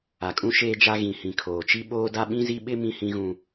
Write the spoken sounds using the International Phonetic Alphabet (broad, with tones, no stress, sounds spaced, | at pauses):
a˨ kʼ ũ˦ ʃ eː˦ d͡ʒ a˦ ɣ ĩ˨ h ĩ˨ kʰ oː˨ t͡ʃ i˦ ɓ oː˦ d a˦ ɓ ĩ˦ z i˦ ɓ ɪ˦ m ĩ˦ h ĩ˦ ɣ ũ˦